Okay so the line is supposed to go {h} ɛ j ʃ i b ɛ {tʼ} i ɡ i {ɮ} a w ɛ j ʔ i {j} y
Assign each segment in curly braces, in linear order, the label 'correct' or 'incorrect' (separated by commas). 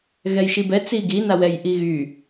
incorrect, incorrect, incorrect, incorrect